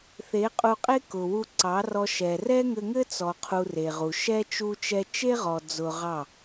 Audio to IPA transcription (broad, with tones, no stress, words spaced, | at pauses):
θe˨˦qʼu˧qʼe˦ kʊ˨wu˧ǀɑ˨˦rɔ˧ ʃɛ˨ rɛ˦ŋɘ˧ŋɘ˦ t͡sɔ˧qʰu˧re˨ʁu˨ ʃɛ˦ t͡ʃu˧t͡ʃɛ˧t͡ʃe˦ʁɔ˨ d͡zʊ˧ʁɑ˦˨